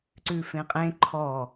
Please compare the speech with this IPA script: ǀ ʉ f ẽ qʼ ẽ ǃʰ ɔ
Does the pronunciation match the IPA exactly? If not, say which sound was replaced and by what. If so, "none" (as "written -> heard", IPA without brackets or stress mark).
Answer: none